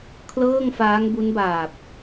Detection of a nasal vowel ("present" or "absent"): absent